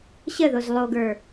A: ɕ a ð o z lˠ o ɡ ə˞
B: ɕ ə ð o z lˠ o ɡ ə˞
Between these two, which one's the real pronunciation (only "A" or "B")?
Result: B